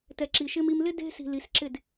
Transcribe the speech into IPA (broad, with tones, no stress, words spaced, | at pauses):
tɛ˨ǁi˨ʃɪ˧m i˧mlɪ˦ de̤˧ si̤˧li˨˦sǁɪ˦˨d